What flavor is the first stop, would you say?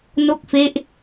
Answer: plain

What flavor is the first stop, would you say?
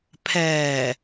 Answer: aspirated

